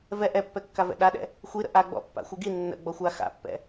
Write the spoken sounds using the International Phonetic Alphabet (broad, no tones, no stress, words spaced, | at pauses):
vɛ ʔɛpːɛkːavɛ̰ ɗaɗɛ̰ | xʷiɾə̰ ʔaɡ͡bɔ̰pːa̰xʷɪ ɡi nːə̰ɡ͡bɔxʷa xa̰pːɛ̰